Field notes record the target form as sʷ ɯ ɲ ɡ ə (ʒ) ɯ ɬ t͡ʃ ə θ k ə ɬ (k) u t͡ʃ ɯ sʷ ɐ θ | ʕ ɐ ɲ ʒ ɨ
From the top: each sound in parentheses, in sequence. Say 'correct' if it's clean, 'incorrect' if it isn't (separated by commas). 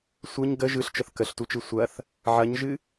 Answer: correct, incorrect